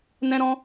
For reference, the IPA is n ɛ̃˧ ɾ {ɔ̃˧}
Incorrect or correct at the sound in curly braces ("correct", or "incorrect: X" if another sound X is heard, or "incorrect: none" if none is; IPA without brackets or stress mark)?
correct